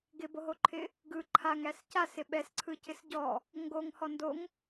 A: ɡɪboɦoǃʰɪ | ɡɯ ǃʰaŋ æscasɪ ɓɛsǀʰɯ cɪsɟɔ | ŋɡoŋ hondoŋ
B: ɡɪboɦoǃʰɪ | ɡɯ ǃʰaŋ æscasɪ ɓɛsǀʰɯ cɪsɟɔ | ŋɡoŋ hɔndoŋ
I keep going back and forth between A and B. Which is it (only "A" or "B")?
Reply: B